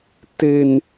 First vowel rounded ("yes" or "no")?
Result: no